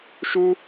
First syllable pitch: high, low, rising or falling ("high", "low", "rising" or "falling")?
high